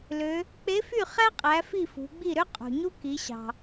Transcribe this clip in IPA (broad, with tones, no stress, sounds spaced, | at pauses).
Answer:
l ø˩˧ | k͡p e˧˥ f y˥˨ χ æ˥ qʼ æ˩˧ f i˥˨ f ṳ˩˧ ɡ͡b i˥˨ ɾ ø˥ qʼ ṳ˩ ɲ u˥ k i˩˧ ɕ ɑ̤˩